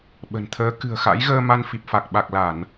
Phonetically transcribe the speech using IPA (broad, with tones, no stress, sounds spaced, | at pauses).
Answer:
ɓ ə̤˨˩ n t̪ʰ əː˨˦ k ɨ̤˨˩ ə̯ x a̰˧˥ j ɣ əː˧ m a˧ n f i˨˩ p̚ f a˨˩ k̚ ɓ a˨˩ k̚ l a˧˩˨ n